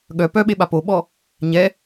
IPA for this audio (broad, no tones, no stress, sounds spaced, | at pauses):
ɠ œ p œ ɓ e ɓ a p o ɓ ɔ | ɲ ɛ